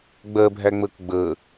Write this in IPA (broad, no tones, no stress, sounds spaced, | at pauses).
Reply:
ɡ͡b ɜ bʱ æ ŋ͡m əː k ɡ͡b əː